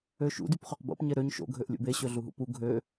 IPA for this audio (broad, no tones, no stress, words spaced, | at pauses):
øʃṵ dypχøqbo̰p ɲeɾøɲ ʃo̰ ɡʱøʔlʲṵbe ɕøɮuɦṵpu ɡʱø